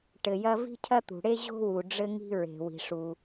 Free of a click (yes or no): yes